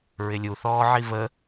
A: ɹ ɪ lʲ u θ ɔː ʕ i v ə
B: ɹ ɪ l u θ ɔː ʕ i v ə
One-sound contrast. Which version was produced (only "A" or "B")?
A